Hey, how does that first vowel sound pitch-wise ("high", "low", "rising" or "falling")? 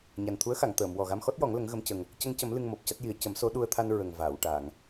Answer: low